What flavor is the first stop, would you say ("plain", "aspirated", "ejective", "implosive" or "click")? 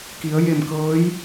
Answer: plain